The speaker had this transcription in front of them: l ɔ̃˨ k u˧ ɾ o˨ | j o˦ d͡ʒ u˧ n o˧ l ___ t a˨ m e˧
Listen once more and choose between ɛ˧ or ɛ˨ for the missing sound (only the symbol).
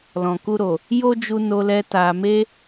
ɛ˧